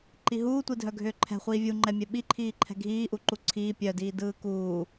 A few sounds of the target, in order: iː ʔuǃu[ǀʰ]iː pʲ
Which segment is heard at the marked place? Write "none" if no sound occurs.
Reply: ǀʰ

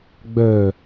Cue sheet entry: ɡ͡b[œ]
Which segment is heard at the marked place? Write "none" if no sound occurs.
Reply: œ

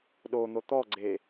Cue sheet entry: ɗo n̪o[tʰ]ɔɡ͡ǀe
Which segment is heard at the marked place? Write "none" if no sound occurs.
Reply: t̪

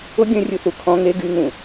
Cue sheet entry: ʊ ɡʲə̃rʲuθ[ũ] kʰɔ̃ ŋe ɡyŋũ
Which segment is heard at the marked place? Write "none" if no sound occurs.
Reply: u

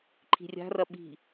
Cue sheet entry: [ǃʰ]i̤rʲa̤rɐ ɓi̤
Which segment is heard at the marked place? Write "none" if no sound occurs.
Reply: ǃʰ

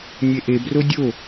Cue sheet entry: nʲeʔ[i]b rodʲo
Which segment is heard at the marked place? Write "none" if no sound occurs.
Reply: e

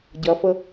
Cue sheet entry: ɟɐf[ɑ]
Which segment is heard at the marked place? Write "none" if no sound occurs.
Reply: ə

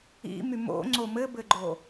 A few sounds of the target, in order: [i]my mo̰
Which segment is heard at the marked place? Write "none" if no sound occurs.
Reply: ḭ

